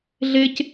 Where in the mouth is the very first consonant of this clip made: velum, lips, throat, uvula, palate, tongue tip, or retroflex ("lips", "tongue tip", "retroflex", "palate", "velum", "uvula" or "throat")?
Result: tongue tip